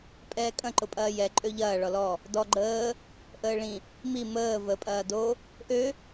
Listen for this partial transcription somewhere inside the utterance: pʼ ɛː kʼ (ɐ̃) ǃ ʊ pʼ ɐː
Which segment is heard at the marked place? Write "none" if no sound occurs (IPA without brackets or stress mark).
ɐ̃